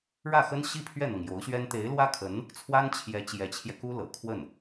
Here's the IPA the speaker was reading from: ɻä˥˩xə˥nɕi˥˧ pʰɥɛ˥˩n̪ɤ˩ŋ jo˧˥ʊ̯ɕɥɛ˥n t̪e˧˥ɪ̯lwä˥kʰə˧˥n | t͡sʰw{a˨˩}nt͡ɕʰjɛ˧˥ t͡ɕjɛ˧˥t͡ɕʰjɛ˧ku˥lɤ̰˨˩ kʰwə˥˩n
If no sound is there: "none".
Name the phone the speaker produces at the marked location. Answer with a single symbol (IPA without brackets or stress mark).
a˥